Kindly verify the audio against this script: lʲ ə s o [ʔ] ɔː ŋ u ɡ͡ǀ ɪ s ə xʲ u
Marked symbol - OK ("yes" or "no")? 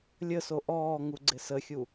yes